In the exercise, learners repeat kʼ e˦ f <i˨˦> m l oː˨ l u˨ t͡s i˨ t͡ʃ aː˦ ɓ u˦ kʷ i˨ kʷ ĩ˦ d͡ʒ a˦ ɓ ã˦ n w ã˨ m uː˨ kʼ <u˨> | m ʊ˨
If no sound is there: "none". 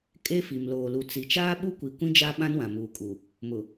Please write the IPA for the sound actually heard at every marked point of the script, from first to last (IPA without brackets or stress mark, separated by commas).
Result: i˨, u˨